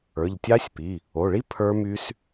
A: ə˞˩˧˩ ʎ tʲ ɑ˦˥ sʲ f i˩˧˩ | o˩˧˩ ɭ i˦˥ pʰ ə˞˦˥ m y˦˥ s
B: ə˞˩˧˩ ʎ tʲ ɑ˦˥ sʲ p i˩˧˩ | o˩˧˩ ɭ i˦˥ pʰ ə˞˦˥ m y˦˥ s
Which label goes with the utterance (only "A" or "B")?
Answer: B